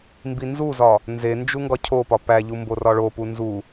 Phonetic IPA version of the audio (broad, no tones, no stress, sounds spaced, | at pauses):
m b i n z u z ɒ | n z e n d͡ʒ u ŋ ɡ ɒ cʰ o p ɒ p æ ʎ u m b o r ɒ ɭ o p u n z u